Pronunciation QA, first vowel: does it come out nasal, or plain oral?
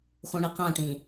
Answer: nasal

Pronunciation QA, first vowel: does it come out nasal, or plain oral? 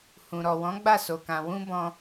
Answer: nasal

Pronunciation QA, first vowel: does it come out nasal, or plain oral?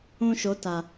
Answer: nasal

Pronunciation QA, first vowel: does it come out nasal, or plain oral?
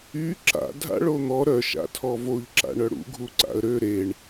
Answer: oral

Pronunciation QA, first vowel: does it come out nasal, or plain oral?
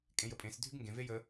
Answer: nasal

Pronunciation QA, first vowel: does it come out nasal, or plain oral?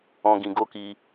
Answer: nasal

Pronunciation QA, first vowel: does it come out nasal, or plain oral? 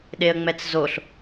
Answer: oral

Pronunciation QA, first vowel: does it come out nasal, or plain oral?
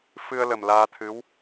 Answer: oral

